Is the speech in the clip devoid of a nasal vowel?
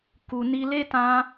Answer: no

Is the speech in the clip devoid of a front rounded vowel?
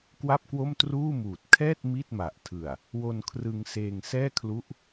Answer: yes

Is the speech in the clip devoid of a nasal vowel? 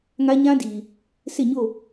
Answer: no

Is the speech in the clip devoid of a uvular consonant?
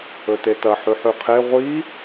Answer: no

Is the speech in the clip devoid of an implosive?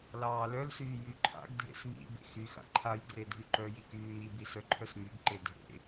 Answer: yes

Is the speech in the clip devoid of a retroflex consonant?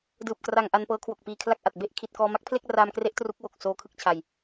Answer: yes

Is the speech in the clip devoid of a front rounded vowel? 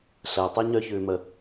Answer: no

